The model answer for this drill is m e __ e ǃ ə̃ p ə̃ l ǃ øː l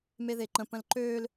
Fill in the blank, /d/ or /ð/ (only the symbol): ð